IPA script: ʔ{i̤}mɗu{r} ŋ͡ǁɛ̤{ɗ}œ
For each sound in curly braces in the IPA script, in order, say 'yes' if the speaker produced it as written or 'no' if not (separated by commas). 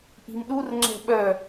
yes, yes, no